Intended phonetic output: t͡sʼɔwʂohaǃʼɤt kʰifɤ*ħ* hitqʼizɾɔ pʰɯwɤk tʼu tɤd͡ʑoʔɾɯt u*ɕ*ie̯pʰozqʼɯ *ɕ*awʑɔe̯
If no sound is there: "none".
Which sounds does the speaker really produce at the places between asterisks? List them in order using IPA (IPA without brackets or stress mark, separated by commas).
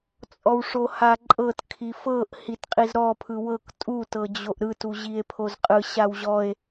ʔ, ʑ, ɕ